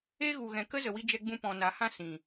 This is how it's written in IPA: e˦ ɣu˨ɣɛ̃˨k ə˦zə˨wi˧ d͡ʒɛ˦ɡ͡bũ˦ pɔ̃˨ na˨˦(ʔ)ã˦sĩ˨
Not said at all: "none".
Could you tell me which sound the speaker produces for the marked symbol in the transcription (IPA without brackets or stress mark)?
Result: h